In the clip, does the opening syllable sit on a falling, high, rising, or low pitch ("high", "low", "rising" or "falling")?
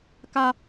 high